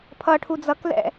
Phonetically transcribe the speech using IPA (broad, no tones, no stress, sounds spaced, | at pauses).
pʰ ʌ ʈʰ u d͡z ʌ k l ɛ̰